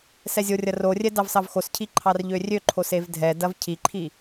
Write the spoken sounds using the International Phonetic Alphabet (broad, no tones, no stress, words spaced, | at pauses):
sɛzʲorʲɐ rorʲɛ dɑvsɑvxoscʰi ǃʰɑrʎørʲøǃʰos evdʱɛdɐv cʰiǃʰi